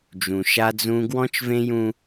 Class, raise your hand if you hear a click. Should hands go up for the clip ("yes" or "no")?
no